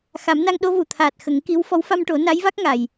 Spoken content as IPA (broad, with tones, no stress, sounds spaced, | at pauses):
x a˨˩˦ m n a˧ ŋ ɗ o˧˥ v u˨˩ t̪ʰ aː˨˩ t̚ x ə˨˩˦ ŋ k i˧˥ w f ɔ˧˥ w f a˧ m ʈ o˨˩˦ n a˧˥ j v a˦˥ k̚ ŋ a˨˩ j